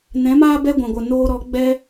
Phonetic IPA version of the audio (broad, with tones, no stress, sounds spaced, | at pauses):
n ɛ̃˨˦ m aː˦ b ɛ˦ ɡʷ ã˨ ɡʷ ə˨ n oː˧ ɾ ɔ˨˦ ɡ͡b ɛ˧